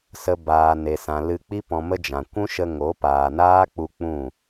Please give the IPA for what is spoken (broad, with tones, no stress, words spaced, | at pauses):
sə˧ baː˨ ne˨sã˨ lɨ˧k͡pi˦ pɔ̃˧mə˦d͡ʒã˨ kʷũ˦ʃə˧ŋo˨˦ paː˨naː˦k͡pu˧ k͡pũ˦˨